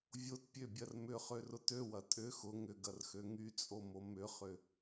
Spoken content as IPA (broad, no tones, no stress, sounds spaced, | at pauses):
vʲ o t pʲ ø bʲ ɐ r m ʏ χ ø r ʊ t ø w ɐ tʼ ʏ x ʊ ŋ ʏ ɡ ɐ r x ø ŋ y t͡sʼ o m o m ʏ χ ʏ